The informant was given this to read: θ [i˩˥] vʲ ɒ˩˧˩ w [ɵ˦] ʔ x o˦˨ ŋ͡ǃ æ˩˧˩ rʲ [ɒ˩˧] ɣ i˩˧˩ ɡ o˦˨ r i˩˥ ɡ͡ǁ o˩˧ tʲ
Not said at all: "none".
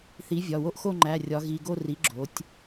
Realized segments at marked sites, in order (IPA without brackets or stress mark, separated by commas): i˩˥, o˦, ɒ˩˧